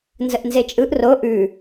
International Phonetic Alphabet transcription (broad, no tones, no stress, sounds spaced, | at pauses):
n z ə ʔ n z e t͡ʃʼ ɯ ʔ r o ʔ ʉ